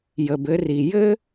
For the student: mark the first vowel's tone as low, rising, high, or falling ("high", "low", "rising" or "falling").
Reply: low